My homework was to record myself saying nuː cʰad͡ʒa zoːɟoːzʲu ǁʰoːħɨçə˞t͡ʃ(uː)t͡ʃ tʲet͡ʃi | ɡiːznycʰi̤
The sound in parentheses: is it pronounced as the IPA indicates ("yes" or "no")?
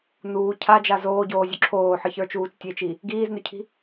yes